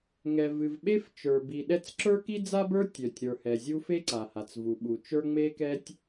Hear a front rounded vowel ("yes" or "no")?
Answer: yes